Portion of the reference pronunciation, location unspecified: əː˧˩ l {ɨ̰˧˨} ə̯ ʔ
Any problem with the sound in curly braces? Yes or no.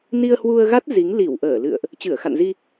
no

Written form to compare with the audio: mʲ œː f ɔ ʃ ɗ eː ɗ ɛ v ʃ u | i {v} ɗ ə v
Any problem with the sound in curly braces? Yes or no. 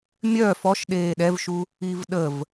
no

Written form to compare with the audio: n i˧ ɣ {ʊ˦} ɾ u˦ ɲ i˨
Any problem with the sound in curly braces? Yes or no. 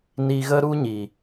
yes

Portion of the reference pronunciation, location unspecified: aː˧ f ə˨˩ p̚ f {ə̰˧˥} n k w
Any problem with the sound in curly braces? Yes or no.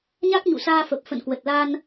yes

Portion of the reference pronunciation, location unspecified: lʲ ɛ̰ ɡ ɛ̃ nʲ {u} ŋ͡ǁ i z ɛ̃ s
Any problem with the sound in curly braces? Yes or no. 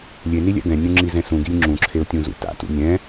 yes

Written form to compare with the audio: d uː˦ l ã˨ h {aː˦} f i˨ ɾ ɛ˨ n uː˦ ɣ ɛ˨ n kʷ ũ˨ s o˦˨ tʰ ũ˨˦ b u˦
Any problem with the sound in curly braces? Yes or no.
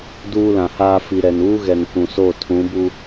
no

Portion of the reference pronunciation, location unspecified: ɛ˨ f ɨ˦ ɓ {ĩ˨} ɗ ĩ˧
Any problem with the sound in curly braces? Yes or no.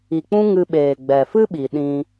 yes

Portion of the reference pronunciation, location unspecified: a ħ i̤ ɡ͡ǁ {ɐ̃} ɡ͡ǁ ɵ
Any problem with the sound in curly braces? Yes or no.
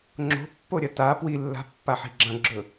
no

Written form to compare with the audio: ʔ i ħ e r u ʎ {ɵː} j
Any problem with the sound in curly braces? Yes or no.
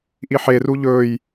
no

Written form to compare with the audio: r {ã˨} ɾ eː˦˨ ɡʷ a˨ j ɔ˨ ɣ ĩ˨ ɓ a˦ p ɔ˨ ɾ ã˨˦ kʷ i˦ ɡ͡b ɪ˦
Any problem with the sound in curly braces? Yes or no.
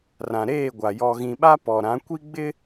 no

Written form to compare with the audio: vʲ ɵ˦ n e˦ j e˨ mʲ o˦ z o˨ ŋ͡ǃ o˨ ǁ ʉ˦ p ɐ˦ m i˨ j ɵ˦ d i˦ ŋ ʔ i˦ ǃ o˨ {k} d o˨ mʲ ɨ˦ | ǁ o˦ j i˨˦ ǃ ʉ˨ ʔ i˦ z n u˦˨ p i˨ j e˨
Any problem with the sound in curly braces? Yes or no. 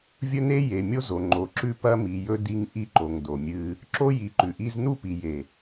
yes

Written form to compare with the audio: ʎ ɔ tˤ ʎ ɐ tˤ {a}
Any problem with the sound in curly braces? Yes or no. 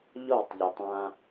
yes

